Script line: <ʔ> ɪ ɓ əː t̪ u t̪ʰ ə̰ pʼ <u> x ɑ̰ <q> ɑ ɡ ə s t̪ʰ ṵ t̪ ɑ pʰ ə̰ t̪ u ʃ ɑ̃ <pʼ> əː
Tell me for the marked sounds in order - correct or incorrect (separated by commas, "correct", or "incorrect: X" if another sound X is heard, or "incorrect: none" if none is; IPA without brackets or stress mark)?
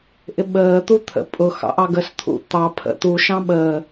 correct, incorrect: ʊ, incorrect: ʔ, incorrect: ɓ